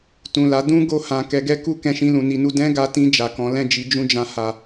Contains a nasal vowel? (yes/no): yes